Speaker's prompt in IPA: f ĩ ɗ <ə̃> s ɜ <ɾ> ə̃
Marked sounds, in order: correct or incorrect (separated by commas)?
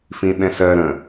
incorrect, correct